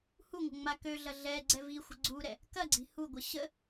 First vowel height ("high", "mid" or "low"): high